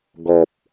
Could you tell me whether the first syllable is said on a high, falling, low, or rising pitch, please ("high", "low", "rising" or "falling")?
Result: low